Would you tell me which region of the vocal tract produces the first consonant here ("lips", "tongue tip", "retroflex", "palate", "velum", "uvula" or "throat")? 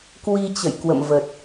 velum